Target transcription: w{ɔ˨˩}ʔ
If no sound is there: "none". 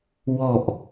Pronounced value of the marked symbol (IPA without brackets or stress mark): ɔ˨˩